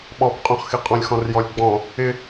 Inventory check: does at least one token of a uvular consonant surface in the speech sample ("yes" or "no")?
yes